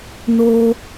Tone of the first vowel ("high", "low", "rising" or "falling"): high